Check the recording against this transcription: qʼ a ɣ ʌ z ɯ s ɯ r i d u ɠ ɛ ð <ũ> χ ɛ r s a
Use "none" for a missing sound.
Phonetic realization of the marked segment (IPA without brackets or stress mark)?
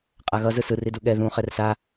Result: ũ